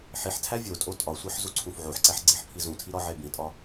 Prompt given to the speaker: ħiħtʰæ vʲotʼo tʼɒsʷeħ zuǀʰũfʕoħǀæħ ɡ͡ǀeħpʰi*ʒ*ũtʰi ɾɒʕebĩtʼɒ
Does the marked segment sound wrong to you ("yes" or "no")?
yes